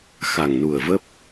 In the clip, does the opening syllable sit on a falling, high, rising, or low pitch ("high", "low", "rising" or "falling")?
low